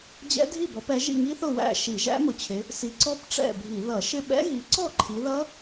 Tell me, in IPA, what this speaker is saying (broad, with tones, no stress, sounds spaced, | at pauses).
d͡ʑ ɛ̰˦˥ dʱ i˥˨ b ɔ˨˦ p ɛ˨˦ ʒ ḭ˥˨ ŋ i˦˥ θ ʊ˥˨ w æ̰˥˨ ʃ i˧˩˧ ʒ æ̰˦˥ m ʊ˨˦ t͡ɕʰ ɪ˨˦ | s i˨˦ ǀ ɔ˦˥ p ʈ͡ʂ ɛ̰˥˨ bʱ i˧˩˧ ð ʌ˧˩˧ ʃ ɪ˥˨ ɓ ɛ̰˦˥ ɣ i˨˦ ǀ ɔ˥˨ ǃʰ i˨˦ ð ʌ˦˥